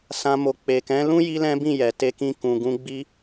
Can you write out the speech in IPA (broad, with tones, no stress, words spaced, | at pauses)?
sã˧mo˨ k͡pe˨kɛ̃˨˦lũ˦ ji˦lɛ̃˦bĩ˦˨jɛ˨ te˧kĩ˧ kũ˨ɡũ˧ ɡ͡bi˧